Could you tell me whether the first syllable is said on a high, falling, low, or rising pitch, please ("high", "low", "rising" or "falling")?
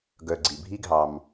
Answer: low